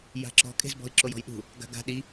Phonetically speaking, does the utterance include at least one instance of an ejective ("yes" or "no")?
yes